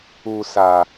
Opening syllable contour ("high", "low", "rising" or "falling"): low